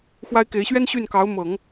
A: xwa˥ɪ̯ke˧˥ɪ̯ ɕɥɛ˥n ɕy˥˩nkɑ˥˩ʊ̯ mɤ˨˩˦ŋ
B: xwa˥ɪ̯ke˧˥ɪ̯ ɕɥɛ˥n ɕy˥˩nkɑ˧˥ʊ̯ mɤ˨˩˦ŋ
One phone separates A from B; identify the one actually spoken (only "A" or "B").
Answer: B